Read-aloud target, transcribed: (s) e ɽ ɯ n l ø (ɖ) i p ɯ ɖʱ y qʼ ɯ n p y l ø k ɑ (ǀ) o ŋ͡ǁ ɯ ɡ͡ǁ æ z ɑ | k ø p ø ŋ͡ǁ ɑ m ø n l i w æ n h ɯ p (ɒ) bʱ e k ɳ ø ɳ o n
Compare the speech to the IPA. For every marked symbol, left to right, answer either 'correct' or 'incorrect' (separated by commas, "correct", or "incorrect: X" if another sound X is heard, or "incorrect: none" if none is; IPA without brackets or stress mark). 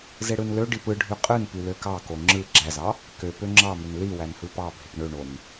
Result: incorrect: z, correct, incorrect: k, incorrect: ɑ